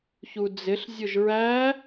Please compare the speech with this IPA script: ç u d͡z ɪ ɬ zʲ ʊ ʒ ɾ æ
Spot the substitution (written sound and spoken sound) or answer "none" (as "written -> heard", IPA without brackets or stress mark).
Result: ɾ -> ɹ